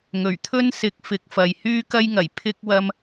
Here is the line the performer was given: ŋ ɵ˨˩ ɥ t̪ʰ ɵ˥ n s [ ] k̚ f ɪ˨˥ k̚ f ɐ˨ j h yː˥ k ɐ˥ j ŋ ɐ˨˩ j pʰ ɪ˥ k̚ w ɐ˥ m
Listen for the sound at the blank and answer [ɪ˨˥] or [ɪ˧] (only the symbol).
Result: ɪ˨˥